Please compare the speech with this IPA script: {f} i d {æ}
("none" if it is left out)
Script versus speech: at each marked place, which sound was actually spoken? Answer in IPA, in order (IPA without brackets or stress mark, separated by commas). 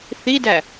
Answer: θ, æ